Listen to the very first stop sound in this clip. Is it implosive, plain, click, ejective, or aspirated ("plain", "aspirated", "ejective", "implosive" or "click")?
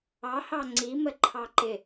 click